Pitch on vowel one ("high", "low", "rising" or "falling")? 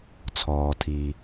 low